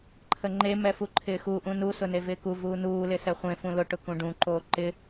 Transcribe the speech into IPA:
ǃʰ ə ŋ͡ǃ e m ɛ f u ǃʰ ɪː x u ʔ ũ n u s ʊ n e v ɪː k u v uː n uː l ɪ s ɛ χʷ ẽ f ũ l ʊ ʈ ʊ k ũ ɖ ũ ǃ oː ǃ ɪ

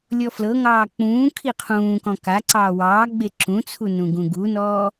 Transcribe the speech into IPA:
lʲ ɔ f l ɤ ŋ ɑː k͡p ũː kʰ i qʰ ũː k ɔ̃ k a ǀ ɑː w ɑː ɡ͡b e ǁ ũ t͡sʰ u n ũ ɡ ũ ɡ u n ɔː

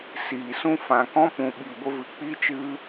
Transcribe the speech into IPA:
s iː˨ s ũ˧ f ã˨ k ɔ̃˦ p ũ˨ ɓ i˨ ɡʷ ə˧ v ɨ˨ k͡p i˦ t͡ʃ ɨ˦

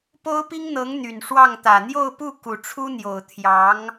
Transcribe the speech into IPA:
p o˥ ʊ̯ p i˥ ŋ n̪ ɤ˧˥ ŋ n̪ y˨˩ n ʂ w ɑ˥˩ ŋ t̪ ä˨˩ n̪ j o˥˧ ʊ̯ p u˥˩ k u˨˩ ʈ͡ʂʰ u˥ n̪ j o˨˩ ʊ̯ t̪ʰ j ɑ˧˥ ŋ

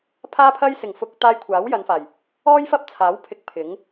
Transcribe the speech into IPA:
pʰ aː˧ pʰ ɐ˧ j s ɪ˨˩ ŋ f ʊ˨ k̚ t̪ aː˧ j kʷʰ aː˨˥ w j ɐ˨˧ n f aː˨˩ j | ɔː˥ j f ɐ˥ p̚ t͡sʰ aː˨˥ w pʰ ɪ˧ k̚ pʰ ɪ˨˥ ŋ

